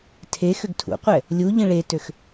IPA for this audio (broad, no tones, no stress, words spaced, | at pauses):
tʰe xøɡtʰṵqʷɛ | lʲuʎĩ ɭetøx